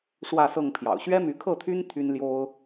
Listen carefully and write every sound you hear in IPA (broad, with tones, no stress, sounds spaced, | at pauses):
ʂ w ä˥˨ s ɤ˥˨ ŋ pʰ j ɑ̰˨˩ ʊ̯ ɕ ɥ ɛ˦ m y˨˦ kʰ ɤ˥˨ t̪ʰ y˦ n t̪ʰ y˦ n l j o˦ ʊ̯